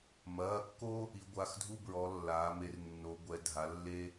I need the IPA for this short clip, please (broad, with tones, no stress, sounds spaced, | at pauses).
m ɐː˩˧˩ kː o˦ | i˩˧ ɡʷ a˩˧˩ x dʱ u˦ b ɹ ɔ˩˧ lː aː˩˧ m e˩˧ r nː o˩˧ ɡʷ ɛ˩˧ dʱ a˩˧ lː e˦